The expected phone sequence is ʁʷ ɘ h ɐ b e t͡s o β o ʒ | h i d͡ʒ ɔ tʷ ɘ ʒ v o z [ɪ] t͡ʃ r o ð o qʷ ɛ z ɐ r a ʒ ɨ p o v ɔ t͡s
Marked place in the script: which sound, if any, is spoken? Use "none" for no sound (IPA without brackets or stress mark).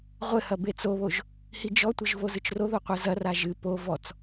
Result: ɨ